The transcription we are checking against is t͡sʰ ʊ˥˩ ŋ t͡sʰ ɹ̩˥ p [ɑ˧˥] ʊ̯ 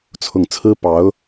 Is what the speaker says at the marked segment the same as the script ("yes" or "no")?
yes